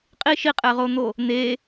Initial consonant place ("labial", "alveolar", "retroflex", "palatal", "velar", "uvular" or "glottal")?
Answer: uvular